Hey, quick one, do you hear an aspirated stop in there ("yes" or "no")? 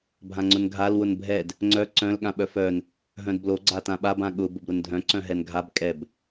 no